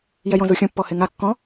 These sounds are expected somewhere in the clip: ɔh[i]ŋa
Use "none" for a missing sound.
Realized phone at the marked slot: e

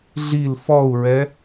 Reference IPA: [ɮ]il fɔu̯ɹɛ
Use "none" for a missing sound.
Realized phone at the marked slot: ɮ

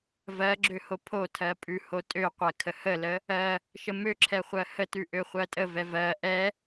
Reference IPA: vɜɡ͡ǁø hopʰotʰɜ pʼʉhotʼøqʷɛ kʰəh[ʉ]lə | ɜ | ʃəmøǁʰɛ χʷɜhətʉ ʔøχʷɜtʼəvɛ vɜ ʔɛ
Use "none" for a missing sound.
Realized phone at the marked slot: ə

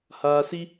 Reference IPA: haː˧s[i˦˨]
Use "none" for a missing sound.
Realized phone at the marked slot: i˦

